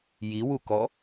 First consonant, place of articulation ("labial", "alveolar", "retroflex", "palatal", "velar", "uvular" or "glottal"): palatal